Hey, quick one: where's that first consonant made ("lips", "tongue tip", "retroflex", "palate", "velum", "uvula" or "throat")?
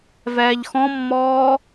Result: lips